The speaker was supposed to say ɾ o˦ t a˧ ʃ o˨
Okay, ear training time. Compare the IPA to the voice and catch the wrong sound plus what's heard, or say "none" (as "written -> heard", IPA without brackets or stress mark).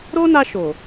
t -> n